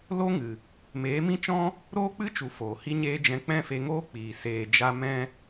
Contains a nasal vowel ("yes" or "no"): yes